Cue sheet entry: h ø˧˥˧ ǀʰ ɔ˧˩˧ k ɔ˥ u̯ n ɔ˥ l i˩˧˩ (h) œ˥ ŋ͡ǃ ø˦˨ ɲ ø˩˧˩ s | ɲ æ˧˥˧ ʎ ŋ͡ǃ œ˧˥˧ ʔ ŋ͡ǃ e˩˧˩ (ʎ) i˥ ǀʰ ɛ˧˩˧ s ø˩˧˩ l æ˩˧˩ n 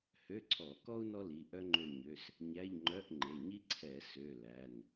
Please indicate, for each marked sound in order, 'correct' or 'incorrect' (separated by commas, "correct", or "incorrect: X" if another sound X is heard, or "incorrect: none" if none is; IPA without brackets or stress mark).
incorrect: ʔ, incorrect: ɲ